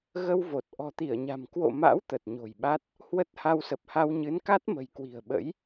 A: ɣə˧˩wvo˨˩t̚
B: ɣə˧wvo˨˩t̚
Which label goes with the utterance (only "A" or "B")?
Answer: B